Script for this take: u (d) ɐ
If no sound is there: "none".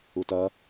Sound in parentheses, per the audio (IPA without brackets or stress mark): t